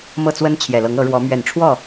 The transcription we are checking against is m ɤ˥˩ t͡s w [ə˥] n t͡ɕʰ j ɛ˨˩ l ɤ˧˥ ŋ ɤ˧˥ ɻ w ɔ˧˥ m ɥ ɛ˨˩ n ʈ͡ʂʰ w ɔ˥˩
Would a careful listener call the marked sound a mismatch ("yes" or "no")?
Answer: no